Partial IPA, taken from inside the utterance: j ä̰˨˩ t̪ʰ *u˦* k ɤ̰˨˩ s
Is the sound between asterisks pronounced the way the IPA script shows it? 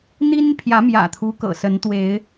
yes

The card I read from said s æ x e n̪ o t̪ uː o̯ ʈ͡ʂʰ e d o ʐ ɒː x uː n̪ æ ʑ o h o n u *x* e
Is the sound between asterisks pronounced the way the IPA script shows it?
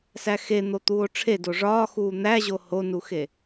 yes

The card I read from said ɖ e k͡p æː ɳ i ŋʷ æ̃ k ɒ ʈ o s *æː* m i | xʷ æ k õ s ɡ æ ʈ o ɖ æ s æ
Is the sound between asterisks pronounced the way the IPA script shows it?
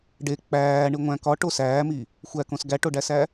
yes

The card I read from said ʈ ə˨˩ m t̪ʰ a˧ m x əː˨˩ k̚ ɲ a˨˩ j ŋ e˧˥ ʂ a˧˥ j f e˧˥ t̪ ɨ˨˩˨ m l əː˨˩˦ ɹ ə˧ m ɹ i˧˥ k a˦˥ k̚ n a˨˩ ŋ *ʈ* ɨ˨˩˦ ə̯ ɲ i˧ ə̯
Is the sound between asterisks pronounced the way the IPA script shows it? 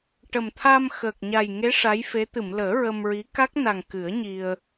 no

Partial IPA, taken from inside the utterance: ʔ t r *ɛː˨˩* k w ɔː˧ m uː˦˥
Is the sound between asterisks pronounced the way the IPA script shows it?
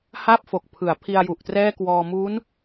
no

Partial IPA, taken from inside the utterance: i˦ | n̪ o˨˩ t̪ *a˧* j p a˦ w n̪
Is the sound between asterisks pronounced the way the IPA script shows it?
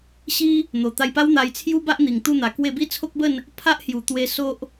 yes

